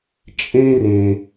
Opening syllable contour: high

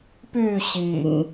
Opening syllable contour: falling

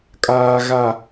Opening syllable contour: low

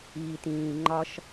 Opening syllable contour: low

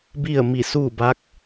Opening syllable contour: falling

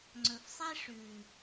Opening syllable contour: low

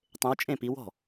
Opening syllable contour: rising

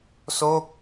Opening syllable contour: falling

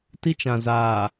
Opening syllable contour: high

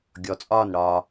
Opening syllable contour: rising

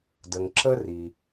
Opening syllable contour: low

